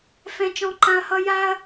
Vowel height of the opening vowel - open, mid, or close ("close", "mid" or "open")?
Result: mid